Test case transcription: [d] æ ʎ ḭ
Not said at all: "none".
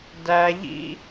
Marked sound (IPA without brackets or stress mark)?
d